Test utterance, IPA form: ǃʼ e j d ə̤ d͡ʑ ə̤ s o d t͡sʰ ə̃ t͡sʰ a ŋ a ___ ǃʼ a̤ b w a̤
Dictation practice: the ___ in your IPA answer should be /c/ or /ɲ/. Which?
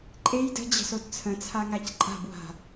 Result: c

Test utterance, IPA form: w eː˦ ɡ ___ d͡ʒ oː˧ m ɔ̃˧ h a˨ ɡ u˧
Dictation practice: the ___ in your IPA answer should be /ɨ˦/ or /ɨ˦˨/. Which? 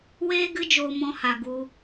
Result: ɨ˦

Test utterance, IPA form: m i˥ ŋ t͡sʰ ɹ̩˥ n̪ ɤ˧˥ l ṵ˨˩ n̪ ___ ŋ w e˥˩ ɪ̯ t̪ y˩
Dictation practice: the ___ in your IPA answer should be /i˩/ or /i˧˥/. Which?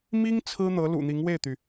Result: i˧˥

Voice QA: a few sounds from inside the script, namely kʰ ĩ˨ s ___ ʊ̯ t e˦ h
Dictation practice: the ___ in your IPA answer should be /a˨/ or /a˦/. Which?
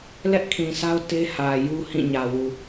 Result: a˦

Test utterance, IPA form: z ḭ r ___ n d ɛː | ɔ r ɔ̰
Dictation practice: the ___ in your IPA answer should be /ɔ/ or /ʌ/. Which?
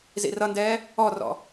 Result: ʌ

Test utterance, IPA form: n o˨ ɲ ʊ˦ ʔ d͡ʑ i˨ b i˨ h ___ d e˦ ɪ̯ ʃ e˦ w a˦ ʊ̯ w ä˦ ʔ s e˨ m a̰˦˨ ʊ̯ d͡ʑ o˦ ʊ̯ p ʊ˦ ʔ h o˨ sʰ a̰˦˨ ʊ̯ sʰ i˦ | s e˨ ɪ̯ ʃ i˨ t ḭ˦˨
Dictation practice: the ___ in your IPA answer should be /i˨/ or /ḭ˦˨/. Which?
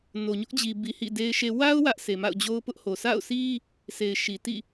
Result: ḭ˦˨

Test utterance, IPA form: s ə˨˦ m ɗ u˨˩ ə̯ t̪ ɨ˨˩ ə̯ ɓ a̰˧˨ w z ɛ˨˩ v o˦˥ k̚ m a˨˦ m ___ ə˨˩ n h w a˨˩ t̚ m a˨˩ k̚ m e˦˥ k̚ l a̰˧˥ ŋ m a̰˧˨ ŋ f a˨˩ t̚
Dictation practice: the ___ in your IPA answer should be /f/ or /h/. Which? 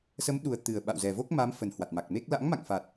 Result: f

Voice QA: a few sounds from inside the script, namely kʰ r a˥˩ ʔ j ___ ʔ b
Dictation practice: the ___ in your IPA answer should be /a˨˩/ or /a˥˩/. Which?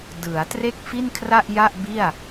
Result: a˥˩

